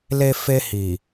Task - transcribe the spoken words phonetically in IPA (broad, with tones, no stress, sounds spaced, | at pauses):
l e˧ f e˧ h i˨